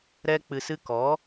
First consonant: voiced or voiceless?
voiced